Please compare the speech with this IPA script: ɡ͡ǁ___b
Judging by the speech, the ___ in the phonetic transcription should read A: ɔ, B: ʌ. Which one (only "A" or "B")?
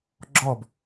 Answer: A